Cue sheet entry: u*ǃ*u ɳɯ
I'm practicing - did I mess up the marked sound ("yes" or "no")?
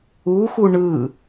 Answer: yes